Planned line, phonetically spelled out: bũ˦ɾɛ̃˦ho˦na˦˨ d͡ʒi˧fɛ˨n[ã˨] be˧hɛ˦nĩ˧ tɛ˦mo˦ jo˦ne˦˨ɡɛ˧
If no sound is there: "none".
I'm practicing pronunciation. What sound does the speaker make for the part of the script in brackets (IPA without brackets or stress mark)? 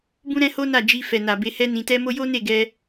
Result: a˨